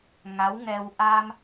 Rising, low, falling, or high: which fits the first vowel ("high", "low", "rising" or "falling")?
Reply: rising